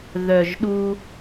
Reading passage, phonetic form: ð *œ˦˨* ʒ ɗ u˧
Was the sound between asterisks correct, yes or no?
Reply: no